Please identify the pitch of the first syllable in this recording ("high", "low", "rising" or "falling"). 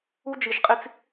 high